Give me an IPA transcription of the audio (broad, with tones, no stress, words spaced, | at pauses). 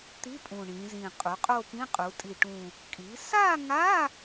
t̪i˧˥˧pʼũ˨˩ ɳĩ˩˧zĩ˨˩ qʼu˩˥qʼo˥˧pĩ˧˥˧ qʼu˩˧tʼi˨˩ʈũ˨˩ | kʼi˩˥ sa˥˧ŋa˧˥˧